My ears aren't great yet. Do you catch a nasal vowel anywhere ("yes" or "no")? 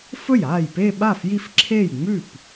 no